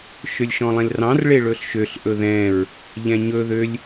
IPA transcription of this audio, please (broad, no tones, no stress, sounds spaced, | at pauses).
ʃ ø lʲ ʃ ɔ̃ lˠ ẽ l r ɑ̃ r ɭ e ɭ ɵ ɬ ʃ ø ɬ ʔ ɵ ð ɛ̃ ɹ | ʎ ɛ̃ ɲ ɵ ð ø lʲ